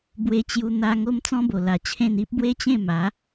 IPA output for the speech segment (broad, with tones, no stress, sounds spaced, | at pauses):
b w e˧ t͡ɕ j u˧ n̪ a˧ ŋ o˦ m t͡s ɔ̃˦ b o˨˩ l a˨˩ t͡ɕʰ ẽ˥˧ n i˦ p̚ b w e˦ t͡ɕ ẽ˥˧ m a˨˦